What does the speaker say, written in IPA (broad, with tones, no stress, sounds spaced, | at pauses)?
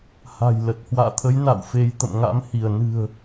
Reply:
h a̤˨˩ j l ə˨˩ t̚ h w a̰ː˧˨ t̪ʰ ə˨˦ j n a̰˧˨ w f e˨˦ j t̪ ə̰˧˨ m ŋ a̰˧˥ m h i˧˩ ə̯ n ɨ̤˨˩ ə̯